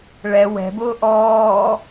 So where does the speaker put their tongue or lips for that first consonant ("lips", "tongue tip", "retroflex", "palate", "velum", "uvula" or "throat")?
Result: retroflex